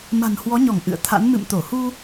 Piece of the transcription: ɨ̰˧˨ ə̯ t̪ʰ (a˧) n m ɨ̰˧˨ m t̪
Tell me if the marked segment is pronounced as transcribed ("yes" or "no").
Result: no